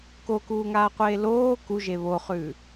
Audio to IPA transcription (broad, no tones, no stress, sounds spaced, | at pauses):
k o k uː ŋ aː qʷ eː l oː k u ʒ e β o χ ʉː